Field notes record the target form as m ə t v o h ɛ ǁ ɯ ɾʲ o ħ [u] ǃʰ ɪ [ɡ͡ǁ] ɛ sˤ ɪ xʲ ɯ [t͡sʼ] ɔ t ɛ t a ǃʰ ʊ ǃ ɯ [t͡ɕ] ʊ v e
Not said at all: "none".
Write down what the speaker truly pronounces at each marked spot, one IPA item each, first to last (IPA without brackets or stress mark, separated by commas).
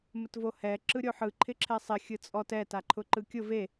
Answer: ɯ, ǁʰ, t͡sʼ, kʲ